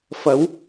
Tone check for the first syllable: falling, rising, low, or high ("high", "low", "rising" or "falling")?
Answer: rising